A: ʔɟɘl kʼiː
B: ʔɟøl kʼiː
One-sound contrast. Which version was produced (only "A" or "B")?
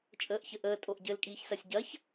A